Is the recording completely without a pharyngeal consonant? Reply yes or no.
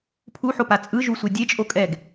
no